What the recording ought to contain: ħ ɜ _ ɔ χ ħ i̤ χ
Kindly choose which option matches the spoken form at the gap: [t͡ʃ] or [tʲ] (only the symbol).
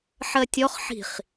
tʲ